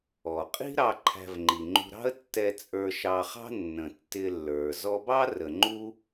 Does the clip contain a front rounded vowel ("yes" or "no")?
no